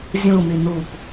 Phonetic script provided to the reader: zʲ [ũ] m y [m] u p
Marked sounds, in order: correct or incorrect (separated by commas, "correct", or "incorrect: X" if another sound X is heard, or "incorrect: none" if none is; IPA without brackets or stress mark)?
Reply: correct, incorrect: n